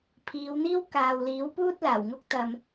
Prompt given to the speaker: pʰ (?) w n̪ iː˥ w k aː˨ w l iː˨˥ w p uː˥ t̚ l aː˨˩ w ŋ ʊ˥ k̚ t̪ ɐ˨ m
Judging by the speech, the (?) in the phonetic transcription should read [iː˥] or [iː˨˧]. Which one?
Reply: iː˨˧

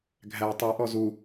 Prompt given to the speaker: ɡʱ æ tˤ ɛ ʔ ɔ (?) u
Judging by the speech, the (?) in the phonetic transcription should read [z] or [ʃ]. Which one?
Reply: z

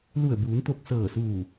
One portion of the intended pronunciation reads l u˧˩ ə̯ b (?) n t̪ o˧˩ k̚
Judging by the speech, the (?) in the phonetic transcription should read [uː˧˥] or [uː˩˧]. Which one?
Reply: uː˩˧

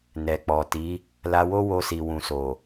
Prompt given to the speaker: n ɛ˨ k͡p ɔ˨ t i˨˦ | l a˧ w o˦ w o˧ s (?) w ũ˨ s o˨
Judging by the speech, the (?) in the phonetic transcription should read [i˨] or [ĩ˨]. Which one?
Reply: i˨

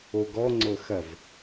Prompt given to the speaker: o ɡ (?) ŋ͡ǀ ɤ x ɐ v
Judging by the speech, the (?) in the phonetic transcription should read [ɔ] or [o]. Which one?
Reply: ɔ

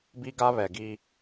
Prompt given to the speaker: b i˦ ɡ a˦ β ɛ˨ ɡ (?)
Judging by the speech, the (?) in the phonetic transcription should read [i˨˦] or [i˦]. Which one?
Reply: i˦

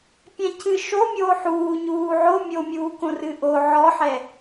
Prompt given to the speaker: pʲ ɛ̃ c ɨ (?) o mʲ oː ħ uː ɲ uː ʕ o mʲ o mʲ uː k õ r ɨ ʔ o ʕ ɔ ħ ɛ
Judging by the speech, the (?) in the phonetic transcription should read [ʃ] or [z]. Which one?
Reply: ʃ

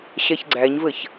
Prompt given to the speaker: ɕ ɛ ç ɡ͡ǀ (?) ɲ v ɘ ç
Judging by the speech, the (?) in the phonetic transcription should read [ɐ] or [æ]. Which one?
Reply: æ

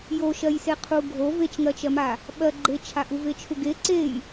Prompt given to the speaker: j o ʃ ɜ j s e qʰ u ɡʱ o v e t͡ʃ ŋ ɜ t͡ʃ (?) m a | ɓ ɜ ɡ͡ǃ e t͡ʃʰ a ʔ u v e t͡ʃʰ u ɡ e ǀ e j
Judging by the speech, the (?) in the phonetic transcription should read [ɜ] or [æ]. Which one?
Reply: ɜ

